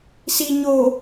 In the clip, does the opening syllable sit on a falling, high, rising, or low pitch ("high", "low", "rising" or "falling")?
low